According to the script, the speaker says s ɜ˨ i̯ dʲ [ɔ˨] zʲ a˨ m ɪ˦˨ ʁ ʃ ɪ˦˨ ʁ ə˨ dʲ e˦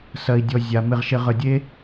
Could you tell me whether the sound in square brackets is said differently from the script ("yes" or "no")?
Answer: no